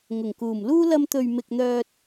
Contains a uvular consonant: no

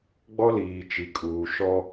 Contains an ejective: yes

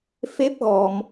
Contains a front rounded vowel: no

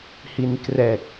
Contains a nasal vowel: no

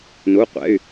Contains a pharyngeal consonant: no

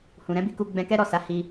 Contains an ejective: no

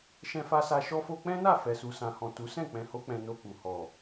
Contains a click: no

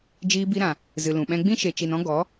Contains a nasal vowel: yes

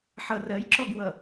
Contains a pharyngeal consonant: yes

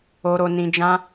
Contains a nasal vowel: yes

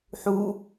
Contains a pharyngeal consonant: yes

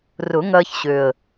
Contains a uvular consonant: no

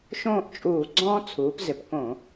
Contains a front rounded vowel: no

